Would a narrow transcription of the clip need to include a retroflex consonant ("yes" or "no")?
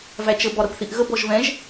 no